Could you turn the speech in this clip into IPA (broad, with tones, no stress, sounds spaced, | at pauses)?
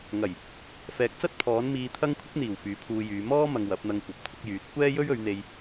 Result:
ŋ ɐ˨˩ j | f ɛː˨ k̚ t͡s ɐ˥ t̚ pʰ ɔː˨˥ n m iː˧ t̪ʰ ɐ˥ ŋ kʷʰ ɪ˥ k̚ n̪ iː˨˩ w f yː˨˥ pʰ uː˧ j yː˨˧ m ɔː˥ m ɐ˧ ŋ w ɐ˨˥ p̚ n̪ ɐ˧ ŋ kʷ ɐ˨ p̚ kʷʰ ɪ˧ k̚ j yː˨˥ t̚ kʷ ɛː˥ j ɵ˥ ɥ ɵ˨˧ ɥ n̪ e˧ j